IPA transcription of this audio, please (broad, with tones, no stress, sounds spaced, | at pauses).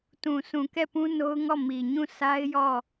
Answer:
t ũ˨ sʰ ũ˨ k ɛ˦˨ p ũ˦ n o˦ ʊ̯ ŋ ɔ˦˨ m i˨ ɲ ũ˦˨ s a˦ ɪ̯ j ɔ˦˨